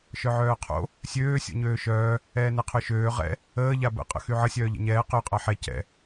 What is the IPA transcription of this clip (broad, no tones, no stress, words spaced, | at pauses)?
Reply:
ʃœʕœːqʰo̰ | sʲøː sʲo̰ɲøːʃœː | ɛːnɛqʰøʃøː ʁɛ̰ | əː ʎabə̰ qʼə̰xyʕə sʲœːʎɛ̰ɲɛː qø qʼaħɛ cɛ̰